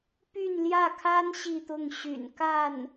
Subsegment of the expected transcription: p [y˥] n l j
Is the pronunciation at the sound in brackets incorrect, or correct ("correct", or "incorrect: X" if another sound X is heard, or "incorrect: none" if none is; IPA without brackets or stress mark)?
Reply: incorrect: y˥˧